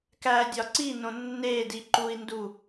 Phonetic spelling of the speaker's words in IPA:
k æ dʲ ɒ ǀ i n õ nː e d i ǃ u i̯ n d u

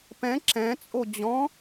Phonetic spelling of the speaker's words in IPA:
p ɛ̃ ǁ ɛ̃ t͡sʼ o d͡ʑ ɔ̃

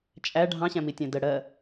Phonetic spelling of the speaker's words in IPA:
t͡ʃʼ æ ɖʱ ɑ̃ ɕ æ̃ m i tʲ æ̃ d ə ɽ ɜ

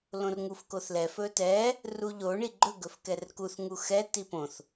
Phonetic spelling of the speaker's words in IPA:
l õ r ŋ u f k o θ l ɛ f ɵ t ɛ | r u ʎ o ɳ i ɡ͡ǃ ɵ ɡ ɵ f k ɛ r k u θ ŋ u x ɛ t i p õ θ

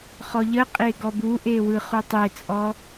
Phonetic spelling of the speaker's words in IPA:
χ ɔ ʎ ə qʼ e ɡ ɔ b u ʔ e w ɯ χ u tˤ e t͡sʼ ɔ

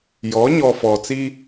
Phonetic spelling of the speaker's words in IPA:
j ɔ˨˦ ɲ ɔ˨ f ɔ˨ t͡s i˦

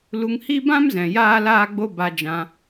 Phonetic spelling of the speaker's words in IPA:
l u˧ ŋ h i˦ b ã˦ m z ɛ̃˨ j aː˦ l aː˦ ɡ͡b o˦ b a˧ d͡ʒ ã˧

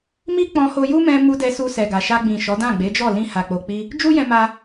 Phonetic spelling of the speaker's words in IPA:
m i˦ k͡p ɔ̃˧ h o˧ j u˦ m ɛ̃˧ m u˧ d ɛ˧ s u˧ s ɛ˨ ɡ a˨ ʃ a˧ ɡ͡b ĩ˨ ʃ ɔ˨˦ d ã˦˨ ɡ͡b e˨˦ d͡ʒ ɔ˦˨ l ĩ˧ h a˨ k͡p o˨ k͡p i˧ | d͡ʒ u˦ j ɛ̃˧ m a˧

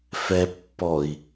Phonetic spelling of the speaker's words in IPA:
f ɛ pː ɔ i̯

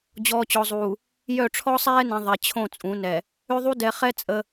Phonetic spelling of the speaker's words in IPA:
d͡ʑ ɔː˨ t͡ɕ ɔ˨ zˤ uː˨ | j œ˦˨ ʈ͡ʂʰ ɔ˦ sˤ ɛː˦ n ẽ˨ ðˤ ɛ˨ t͡ɕʰ õ˦˨ t͡sʼ ũ˨˦ n ɛ˨ | ø˦ ðˤ u˦ d ɛ˨ χ ɛ˦ t͡sʼ ə˦

